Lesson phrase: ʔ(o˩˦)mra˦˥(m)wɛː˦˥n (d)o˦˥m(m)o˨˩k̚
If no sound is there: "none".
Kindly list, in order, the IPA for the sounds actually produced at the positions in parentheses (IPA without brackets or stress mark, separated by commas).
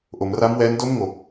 o˩˦, m, d, ŋ